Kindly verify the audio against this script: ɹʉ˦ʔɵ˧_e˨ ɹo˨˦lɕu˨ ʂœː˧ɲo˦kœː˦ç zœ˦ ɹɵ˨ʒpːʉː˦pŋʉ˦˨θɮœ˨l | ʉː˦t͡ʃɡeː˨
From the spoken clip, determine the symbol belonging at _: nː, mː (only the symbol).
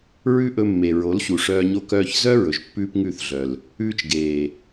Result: mː